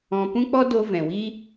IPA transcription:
ɔ̃˧ p ũ˦ k͡p ɔ˦ d o˧ v ɛ̃˨ w i˦

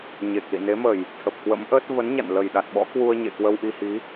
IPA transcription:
ɲ e˨˩ k̚ l ḭ˧˨ n e˨˦ m ə˨˩ j | t̪ʰ ə˨˩ p̚ k w ə̰˧˥ m ʔ əː˦˥ t̚ v ə˨˦ n ɲ a̰˧˨ n l ə˨˩ j ɗ a˨˩ t̚ ɓ ɔ̰˧˥ k w u˧ ə̯ ɲ ḛ˧˨ k w ə˧ w ʔ i˧ h i˨˦

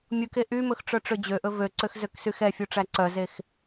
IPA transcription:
mʲ u k e ʔ y m ɵ x ʈ͡ʂ œ ʈ͡ʂ ø d͡ʑ ø ʔ ɵ v ø ǀ ø x z ø k s y x ɛ fʲ u ʈ͡ʂ æ ǀ œ z e x

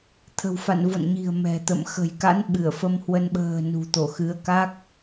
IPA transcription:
t̪ʰ ə̤˨˩ w f a̰˧˨ n v o̰˧˨ n ɲ i̤˨˩ ə̯ m ɛ̤˨˩ t̪ ə̰˧˨ m x ə̤˨˩ j k a̰˧˥ n ɓ ɨ˧˩ ə̯ f ə˧ m h w ə˧ n ɓ ə̤ː˨˩ n ṳ˨˩ t̪ o˧˩ x ɨ˨˦ ə̯ k a˦˥ k̚

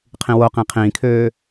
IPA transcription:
qʰ ĩ w o q ĩ qʰ ĩː kʰ øː

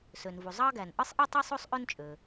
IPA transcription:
s ø˩ n v u˩ zˤ ɑ˥ ɡ æ˩ n ʔ ɯ˥ sˤ ʔ i˥ tˤ e˥ sˤ o˥ sˤ ʔ ø˥ n t͡ʃʼ ø˩

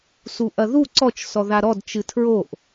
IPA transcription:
s u ʔ ɐ ð u ǀ ɔ t͡ʃ s ɔ ð a ɾ ɔ d t͡ʃ ɨ tʰ ɹ o ʔ

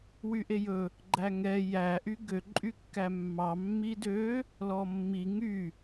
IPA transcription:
w y ʔ e j ɵ | ɡ͡ǃ æ ŋ ɛ j æ ʔ y ɡ ø ǃʼ y kː æ mː ɑ mː i d ø | l ɔ mː i ŋ y

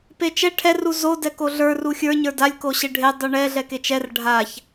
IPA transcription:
p e t͡ʃ ɛ ʈʰ ɛ r u z o d ɛ k o ɮ ə˞ r u xʲ ə˞ ɲ ə˞ d a lʲ k o ɕ e ɖʱ e dˤ u ɳ ɛ ɮ ɛ k e t͡ʃ ɛ r ɖʱ a ç

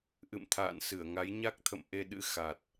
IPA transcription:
ʔ ɨ̰˧˨ m t̪ʰ a̰ː˧˨ n s ɨ˧˩ ə̯ ŋ a˨˦ j ɲ a˦˥ k̚ t̪ʰ ə̰˧˨ m ʔ e˧ ɗ ɨ̰˧˥ x a˨˩ t̚

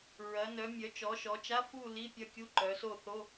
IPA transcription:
ɹ ɐ˩˧ n œ˩˧ mʲ œ˩˧ t͡ʃ ɔ˩˧ ʃ ɔ˩˧ t͡ʃ a˧˥˧ f u˦˨ l i˧˥˧ pʲ ɐ˦˨ kʲ u˧˥˧ ǃ œ˩˧ s o˦˨ θ o˧˥˧

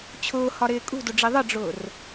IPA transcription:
t͡ɕʰ ʊː h ɒ ɾ ɪː kʼ ṳ d ʊ ɖ͡ʐ i ðˤ ə ɖ͡ʐ ʊː r

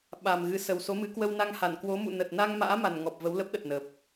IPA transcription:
ɓ a˨˩ m ɣ ɨ˨˦ s ə˨˩ w s o˨˦ m ɨ˨˦ k w ə˧ w n a˧ ŋ h a˧˩ n k w o˨˦ m ṵ˧˨ n ə˨˩ t̚ n a˧ ŋ m a̰ː˧˥ m a˨˩ n ŋ ɔ˨˩ p̚ v ə˨˦ w l ə˦˥ p̚ ɗ ə˨˩ t̚ n ə˨˩ p̚

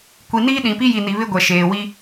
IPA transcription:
kʷ i˨ n iː˦ ɗ ĩ˨ p i˦ j i˨ n i˨ β ɪ˦ ɡʷ ɛ˨ ʃ eː˨ w i˦

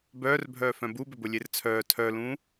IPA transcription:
b œː r bʱ œː f œ̃ b u b ʏ b ʊ lʲ e r t͡sʰ œː tʰ œ l ũː

